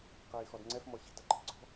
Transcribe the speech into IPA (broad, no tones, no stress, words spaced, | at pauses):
qiːxɔdŋ͡ǀɛf mɔɕi̤t ɐǃʰi̤ǀɔ̤